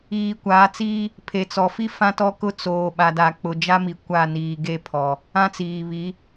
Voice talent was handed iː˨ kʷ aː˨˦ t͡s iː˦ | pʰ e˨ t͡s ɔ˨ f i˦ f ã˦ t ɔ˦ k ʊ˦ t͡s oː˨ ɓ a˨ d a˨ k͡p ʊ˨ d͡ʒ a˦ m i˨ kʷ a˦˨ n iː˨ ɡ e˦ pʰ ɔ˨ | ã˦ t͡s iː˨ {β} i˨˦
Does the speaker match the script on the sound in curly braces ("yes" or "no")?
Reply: yes